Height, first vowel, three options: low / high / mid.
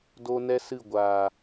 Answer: mid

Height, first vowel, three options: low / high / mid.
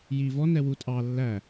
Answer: high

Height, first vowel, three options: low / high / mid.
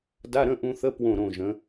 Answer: low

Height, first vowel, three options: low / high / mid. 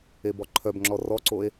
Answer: mid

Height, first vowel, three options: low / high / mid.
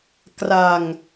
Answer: low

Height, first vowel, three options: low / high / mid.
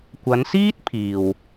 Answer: low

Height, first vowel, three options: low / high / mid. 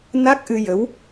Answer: low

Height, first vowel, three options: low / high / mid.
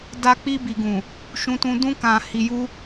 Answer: low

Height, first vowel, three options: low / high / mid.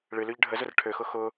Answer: high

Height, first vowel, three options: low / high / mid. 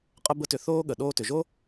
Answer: mid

